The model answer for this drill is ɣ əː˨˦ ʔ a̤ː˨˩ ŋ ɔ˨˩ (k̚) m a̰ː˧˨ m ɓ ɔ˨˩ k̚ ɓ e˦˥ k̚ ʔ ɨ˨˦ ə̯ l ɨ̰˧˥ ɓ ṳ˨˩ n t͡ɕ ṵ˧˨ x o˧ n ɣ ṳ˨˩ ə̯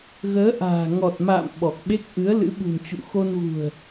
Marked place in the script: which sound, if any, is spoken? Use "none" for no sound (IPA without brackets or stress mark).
t̚